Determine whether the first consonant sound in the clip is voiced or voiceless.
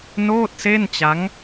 voiced